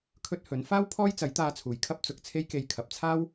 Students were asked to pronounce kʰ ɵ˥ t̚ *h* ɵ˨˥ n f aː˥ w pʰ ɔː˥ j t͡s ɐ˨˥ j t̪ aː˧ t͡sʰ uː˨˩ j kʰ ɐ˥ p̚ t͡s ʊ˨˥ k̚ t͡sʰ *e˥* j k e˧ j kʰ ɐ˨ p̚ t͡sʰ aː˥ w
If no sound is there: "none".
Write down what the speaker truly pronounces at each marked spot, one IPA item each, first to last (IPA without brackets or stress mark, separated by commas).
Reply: h, e˥